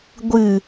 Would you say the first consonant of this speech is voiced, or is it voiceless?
voiced